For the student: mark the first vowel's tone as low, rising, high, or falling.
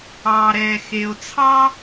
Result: low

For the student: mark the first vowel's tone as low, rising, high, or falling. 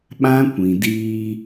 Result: high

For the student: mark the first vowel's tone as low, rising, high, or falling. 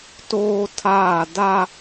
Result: high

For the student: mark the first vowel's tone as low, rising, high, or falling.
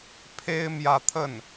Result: high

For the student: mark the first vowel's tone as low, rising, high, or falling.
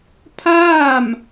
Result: falling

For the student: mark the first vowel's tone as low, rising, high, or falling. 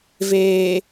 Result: low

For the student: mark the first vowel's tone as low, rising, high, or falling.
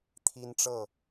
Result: high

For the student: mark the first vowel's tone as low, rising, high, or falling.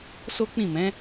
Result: high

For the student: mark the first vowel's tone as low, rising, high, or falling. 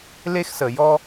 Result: high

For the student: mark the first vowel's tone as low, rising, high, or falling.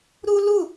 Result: high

